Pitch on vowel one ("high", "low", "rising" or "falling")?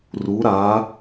rising